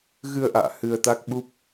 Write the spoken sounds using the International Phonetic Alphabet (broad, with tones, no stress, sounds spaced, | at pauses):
ɣ ɨ˧ ə̯ ʔ a̰ː˧˨ h ɨ˧ ə̯ t̪ a˦˥ k̚ ɓ u˦˥ p̚